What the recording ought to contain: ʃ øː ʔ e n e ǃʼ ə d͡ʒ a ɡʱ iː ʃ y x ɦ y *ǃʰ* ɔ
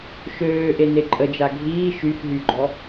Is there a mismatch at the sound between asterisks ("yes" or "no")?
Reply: yes